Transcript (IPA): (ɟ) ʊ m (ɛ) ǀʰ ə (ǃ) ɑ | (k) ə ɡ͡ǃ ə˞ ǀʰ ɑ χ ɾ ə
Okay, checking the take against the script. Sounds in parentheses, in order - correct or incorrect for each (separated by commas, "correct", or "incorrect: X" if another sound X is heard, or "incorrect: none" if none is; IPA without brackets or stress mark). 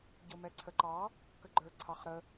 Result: correct, correct, correct, correct